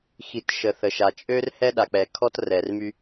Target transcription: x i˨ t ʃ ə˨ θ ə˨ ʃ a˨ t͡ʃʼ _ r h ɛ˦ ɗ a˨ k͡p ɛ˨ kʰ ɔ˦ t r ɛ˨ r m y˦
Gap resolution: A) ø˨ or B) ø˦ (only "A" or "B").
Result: B